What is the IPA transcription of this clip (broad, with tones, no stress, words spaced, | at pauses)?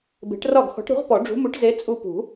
be̤˨˥ʈrɒ˥˩ɡ xɔ̤˨˥ʈɾṳ˨˥ʁpɔ˨˩˦ ɖ͡ʐṳ˨˥mu˨˥ʈze˨˥ t͡sʼu˧pṳ˨˩˦